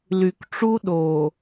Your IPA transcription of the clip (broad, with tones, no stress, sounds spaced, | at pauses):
l y˨ k ʈ͡ʂ u˦ ɗ o˨